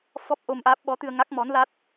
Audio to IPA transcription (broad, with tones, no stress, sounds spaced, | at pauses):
f ɔ˦˥ p̚ ʔ o˧ m ʔ aː˦˥ p̚ ɓ ɔ˧˥ t̪ ɨ˧ ə̯ ŋ a˦˥ k̚ m ɔ˧˥ n l a˦˥ t̚